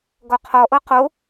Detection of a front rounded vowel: absent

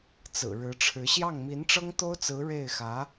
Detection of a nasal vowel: absent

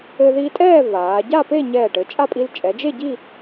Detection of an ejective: present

